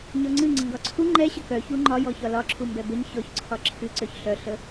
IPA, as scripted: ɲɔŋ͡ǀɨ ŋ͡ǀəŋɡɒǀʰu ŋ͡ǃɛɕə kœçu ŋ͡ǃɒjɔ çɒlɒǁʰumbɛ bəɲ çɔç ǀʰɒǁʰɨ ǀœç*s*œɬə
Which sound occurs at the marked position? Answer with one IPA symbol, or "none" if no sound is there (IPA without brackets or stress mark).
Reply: ɬ